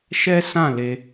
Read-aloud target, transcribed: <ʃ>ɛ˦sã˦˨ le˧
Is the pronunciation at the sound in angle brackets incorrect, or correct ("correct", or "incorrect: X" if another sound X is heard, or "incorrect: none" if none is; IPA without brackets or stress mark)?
correct